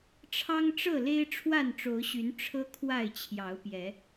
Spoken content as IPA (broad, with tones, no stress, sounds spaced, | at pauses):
ʈ͡ʂʰ ɑ˦ ŋ ʈ͡ʂ ɤ˥˨ l e˦ ɪ̯ ʈ͡ʂʰ w a˥˨ n ʈ͡ʂ o˨˦ ʊ̯ ɕ y˨˦ n ʈ͡ʂʰ ɤ˦ kʰ w a˥˨ ɪ̯ t͡ɕʰ j ɑ˨˦ ʊ̯ p j ɛ˨˦